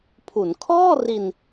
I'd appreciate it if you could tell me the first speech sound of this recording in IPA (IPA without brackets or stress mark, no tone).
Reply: pʰ